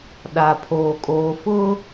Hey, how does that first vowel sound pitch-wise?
low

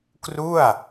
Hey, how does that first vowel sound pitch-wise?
falling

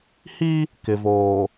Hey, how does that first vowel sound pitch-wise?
high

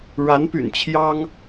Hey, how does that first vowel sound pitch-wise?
rising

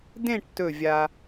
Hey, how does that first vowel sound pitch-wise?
falling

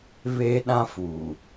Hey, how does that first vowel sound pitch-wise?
high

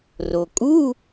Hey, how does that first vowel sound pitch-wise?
low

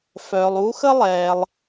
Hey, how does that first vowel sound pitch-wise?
low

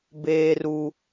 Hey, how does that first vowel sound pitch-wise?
high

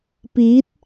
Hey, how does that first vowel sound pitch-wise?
rising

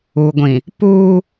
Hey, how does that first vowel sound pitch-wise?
low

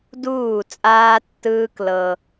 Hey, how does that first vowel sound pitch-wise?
falling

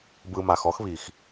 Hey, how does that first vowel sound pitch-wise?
low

